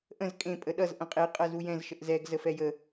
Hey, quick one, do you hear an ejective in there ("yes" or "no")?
yes